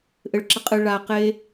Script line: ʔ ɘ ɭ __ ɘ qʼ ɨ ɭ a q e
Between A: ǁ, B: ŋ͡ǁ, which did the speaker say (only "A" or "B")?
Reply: A